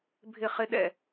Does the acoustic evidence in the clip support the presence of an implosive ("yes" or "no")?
yes